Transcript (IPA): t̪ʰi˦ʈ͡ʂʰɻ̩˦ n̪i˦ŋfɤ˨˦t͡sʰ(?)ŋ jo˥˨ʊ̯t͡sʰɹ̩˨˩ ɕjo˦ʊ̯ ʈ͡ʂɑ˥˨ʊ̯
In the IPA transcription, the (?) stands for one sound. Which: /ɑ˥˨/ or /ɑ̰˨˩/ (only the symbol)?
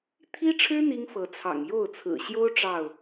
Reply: ɑ̰˨˩